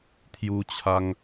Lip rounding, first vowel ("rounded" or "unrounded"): rounded